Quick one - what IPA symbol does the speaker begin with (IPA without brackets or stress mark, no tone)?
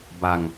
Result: b